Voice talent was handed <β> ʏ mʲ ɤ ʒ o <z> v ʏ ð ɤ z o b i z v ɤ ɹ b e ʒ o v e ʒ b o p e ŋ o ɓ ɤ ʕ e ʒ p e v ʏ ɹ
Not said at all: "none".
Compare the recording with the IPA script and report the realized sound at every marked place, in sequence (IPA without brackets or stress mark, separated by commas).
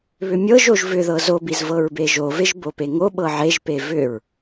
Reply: β, ʒ